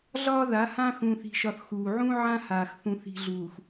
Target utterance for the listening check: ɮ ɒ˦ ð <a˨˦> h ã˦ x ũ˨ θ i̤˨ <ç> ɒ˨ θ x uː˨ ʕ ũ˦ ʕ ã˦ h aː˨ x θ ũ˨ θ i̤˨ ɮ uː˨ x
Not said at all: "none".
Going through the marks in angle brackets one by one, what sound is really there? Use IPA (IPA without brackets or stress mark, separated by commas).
a˨˦, ʃ